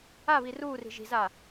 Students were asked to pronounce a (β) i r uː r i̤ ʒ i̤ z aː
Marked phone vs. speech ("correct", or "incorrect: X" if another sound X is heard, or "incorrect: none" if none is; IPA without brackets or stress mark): correct